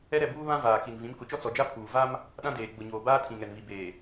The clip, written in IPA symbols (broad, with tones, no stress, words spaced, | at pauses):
ɛ˦ɾɛ˦˨buː˦ βã˦ vaː˨ki˨nvĩ˨˦m kʊ˨t͡ʃɔ˦t͡sɔ˨d͡ʒa˦ pʰuː˨ va˦m | ɗã˦deː˨ ɡ͡bʊ˨ɲoː˨ baː˦tʰĩ˨ŋɛ˨nβi˨ beː˨